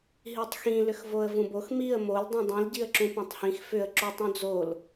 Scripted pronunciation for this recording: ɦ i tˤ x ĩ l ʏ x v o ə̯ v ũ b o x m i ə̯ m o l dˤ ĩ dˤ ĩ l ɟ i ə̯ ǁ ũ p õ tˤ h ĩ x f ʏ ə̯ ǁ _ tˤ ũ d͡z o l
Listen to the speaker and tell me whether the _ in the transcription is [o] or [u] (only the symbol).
u